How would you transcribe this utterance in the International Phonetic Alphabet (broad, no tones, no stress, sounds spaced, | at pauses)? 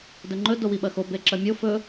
d ɵ ŋ͡ǃ ɵ d o w i ɓ ɐ x o b e ǁ ɐ mʲ o f ɵ